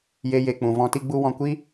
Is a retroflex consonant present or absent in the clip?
absent